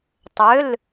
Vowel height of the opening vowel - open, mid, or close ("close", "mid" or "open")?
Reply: mid